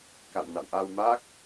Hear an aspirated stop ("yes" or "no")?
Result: no